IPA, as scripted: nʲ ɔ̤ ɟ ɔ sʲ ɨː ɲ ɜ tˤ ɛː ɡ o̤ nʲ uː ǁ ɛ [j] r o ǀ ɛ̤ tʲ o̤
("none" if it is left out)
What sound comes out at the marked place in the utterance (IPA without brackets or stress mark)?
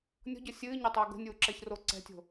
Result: ç